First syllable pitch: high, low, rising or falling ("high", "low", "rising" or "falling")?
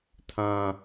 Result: low